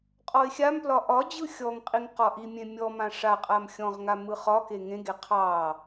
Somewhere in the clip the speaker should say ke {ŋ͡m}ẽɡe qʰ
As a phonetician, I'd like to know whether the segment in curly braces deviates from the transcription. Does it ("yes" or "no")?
yes